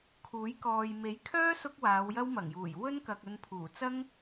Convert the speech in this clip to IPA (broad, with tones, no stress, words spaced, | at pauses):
kʰuː˨˥jkɔː˨j me˨˥jkʰœː˥ sʊ˥k̚waː˨˧wjɐ˥w mɐ˨˩ŋjuː˨˩j wɵ˥nkɐ˨k̚ ɵ˧npʰuː˨˩ t͡sɐ˥ŋ